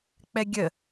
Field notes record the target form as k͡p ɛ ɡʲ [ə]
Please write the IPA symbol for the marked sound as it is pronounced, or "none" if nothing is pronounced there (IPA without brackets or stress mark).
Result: ə